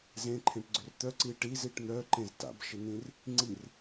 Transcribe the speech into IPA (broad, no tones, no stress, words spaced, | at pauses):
zẽǃʰẽʈɡ͡ǀʏr t̪œǀi ʈiziʈ n̪œǃẽz ta̰bʃɪn̪ĩr | ŋ͡ǀir